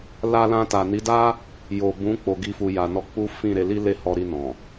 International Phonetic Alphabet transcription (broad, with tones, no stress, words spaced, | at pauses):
la˧lã˧ta˨ ni˨˦da˦ | jo˨bũ˨˦ k͡po˧ ɡi˦fu˧ja˧nɔ˦ k͡pu˦ fĩ˦˨ ɾe˧li˦ le˦˨hɔ˧ɾi˧ nɔ̃˨